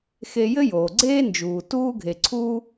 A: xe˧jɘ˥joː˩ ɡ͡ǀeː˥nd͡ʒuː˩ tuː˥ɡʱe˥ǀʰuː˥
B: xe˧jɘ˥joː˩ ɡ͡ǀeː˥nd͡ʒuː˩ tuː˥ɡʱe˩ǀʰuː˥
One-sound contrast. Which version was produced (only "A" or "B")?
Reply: B